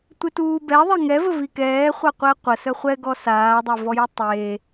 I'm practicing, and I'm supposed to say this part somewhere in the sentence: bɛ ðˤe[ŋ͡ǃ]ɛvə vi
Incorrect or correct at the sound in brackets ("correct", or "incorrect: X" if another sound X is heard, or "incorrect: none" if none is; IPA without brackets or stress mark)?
incorrect: ŋ